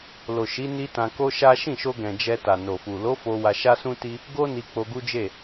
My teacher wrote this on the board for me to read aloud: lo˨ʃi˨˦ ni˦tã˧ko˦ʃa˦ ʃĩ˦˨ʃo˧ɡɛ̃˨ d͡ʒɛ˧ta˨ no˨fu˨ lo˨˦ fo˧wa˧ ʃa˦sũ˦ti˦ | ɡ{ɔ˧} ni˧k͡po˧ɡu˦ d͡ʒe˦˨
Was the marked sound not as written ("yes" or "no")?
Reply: yes